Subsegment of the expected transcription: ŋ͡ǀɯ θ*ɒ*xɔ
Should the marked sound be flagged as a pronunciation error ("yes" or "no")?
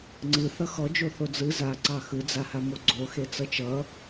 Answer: yes